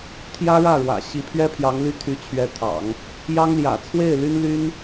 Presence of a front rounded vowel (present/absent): present